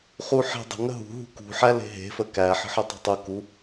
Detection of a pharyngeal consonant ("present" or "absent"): present